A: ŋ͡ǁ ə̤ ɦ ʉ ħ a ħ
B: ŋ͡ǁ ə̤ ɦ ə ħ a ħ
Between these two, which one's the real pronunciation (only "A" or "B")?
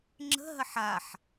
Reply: B